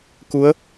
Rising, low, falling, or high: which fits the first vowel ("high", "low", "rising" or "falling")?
rising